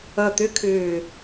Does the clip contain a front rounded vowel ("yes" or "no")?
yes